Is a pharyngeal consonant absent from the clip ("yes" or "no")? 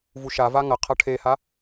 yes